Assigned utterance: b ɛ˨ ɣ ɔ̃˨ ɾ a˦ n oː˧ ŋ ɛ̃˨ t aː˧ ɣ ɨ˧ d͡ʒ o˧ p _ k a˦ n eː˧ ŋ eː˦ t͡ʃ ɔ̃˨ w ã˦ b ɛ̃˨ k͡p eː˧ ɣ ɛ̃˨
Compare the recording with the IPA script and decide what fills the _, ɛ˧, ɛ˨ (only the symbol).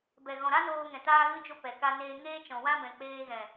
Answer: ɛ˨